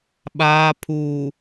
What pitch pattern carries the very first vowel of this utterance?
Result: low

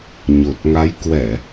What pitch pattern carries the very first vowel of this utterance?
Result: low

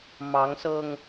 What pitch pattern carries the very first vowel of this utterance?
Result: rising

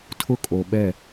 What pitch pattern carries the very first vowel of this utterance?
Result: high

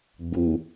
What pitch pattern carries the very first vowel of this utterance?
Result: low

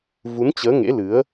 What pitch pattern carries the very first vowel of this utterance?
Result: rising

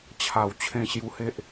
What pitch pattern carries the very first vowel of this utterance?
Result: low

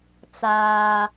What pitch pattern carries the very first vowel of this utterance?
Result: high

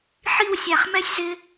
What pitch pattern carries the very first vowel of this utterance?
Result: falling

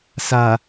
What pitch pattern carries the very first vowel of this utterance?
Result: low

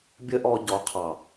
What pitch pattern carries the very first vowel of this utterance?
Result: high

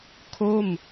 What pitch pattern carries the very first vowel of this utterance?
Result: falling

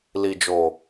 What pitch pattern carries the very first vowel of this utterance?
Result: low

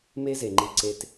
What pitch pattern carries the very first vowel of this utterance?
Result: high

